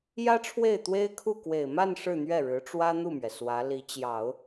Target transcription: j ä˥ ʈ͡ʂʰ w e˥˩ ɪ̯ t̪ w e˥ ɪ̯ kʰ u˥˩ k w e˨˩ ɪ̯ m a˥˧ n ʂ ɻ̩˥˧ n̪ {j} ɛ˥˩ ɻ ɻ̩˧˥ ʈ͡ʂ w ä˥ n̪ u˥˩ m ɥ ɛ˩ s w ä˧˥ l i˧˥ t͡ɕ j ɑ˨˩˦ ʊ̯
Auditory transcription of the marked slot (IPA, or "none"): ɥ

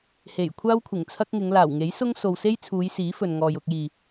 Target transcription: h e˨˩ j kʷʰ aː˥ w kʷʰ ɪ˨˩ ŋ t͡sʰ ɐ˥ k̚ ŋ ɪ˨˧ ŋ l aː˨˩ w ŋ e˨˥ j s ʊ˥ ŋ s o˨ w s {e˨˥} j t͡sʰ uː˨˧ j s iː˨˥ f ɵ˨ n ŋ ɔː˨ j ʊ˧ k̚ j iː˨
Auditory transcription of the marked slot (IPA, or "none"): e˥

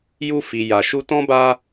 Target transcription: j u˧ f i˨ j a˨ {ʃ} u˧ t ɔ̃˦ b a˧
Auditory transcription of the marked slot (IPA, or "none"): ʃ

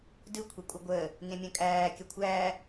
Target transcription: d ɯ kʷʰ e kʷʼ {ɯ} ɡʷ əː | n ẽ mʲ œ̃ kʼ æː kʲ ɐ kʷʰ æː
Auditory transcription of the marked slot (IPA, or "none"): ɯ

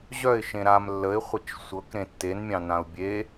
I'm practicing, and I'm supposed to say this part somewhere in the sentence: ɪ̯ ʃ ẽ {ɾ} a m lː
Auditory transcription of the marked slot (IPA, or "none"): ɾ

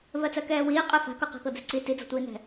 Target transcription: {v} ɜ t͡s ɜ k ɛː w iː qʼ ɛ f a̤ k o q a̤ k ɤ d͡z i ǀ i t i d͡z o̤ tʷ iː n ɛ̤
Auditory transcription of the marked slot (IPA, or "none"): v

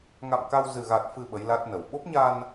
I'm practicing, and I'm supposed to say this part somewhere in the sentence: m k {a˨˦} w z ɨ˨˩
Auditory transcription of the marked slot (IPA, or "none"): a˧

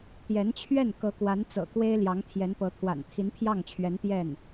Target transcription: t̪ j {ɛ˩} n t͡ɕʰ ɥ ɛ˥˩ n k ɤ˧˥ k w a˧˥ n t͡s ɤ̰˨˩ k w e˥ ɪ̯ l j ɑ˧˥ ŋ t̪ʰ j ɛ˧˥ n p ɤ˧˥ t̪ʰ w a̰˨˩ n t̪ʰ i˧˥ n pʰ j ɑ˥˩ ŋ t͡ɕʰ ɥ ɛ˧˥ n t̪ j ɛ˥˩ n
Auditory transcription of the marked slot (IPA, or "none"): ɛ˧˥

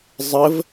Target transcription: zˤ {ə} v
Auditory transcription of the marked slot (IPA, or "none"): ə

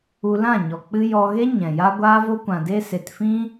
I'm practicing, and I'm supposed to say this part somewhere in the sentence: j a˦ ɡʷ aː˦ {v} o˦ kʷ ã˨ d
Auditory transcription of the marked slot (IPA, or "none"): v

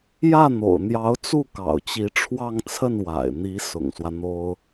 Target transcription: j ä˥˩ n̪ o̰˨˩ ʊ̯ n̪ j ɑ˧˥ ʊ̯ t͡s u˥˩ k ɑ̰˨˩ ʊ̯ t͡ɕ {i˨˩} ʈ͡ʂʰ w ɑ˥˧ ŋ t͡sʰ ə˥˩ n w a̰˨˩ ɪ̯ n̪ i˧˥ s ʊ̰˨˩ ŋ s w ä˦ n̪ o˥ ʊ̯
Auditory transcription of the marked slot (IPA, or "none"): i˧˥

